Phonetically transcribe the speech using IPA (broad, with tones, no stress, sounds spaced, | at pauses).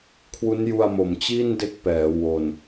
kʰ w u˦˥ n j u˧ a̯ m o˨˩ m t͡ɕ i˥˩ n d e˥˩ k̚ p ɛː˩˦ w o˨˩ n